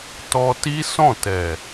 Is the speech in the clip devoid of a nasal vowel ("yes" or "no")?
no